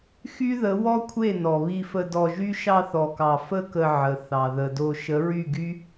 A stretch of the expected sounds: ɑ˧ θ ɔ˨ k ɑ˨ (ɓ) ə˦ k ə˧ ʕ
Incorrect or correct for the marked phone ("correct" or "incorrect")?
incorrect